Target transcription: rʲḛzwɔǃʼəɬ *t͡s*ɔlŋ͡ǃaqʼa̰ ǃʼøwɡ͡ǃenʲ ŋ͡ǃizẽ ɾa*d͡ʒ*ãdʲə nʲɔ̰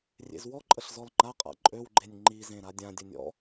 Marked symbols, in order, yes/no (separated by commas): no, no